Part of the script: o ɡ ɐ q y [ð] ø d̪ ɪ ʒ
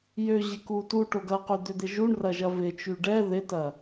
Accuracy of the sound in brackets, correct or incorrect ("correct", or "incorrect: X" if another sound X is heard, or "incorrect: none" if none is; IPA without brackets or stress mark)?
incorrect: d̪